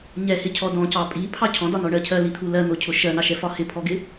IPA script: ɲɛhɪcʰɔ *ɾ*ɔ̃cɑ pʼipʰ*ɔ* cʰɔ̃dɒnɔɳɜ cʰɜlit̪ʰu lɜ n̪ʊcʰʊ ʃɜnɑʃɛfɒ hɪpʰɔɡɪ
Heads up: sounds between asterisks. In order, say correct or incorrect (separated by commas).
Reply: incorrect, incorrect